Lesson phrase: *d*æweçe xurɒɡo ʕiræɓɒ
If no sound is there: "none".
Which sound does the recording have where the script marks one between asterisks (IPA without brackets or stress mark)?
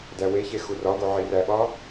d